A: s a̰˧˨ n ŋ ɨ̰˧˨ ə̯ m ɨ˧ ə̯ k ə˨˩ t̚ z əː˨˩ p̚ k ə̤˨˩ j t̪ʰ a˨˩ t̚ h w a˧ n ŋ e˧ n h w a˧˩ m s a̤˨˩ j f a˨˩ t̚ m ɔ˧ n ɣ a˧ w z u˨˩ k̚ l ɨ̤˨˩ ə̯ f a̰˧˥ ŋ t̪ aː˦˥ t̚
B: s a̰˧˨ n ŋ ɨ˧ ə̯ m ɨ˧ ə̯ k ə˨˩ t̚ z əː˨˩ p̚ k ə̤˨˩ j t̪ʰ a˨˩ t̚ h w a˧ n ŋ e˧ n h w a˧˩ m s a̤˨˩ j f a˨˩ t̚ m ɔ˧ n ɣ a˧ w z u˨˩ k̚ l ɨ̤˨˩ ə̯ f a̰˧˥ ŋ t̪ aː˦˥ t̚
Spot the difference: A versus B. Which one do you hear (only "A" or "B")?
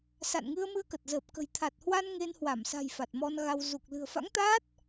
B